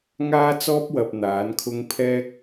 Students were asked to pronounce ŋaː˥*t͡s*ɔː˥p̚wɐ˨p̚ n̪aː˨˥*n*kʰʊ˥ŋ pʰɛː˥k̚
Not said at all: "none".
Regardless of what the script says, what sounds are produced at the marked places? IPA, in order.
t͡s, n

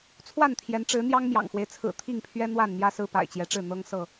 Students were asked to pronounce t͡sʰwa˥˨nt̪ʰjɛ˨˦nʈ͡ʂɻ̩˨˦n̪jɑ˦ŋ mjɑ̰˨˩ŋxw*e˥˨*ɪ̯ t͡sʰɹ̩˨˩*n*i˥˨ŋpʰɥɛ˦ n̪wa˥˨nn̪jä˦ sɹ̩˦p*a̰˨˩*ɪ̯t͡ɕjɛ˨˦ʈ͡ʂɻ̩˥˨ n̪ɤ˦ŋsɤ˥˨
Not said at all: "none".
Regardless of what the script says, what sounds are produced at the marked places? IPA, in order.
e˦, t̪ʰ, a̰˨˩

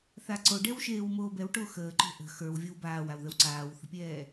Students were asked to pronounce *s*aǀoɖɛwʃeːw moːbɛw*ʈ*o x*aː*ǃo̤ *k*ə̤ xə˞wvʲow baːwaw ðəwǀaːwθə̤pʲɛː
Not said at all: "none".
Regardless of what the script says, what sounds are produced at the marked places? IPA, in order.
θ, ʈ, əː, ʔ

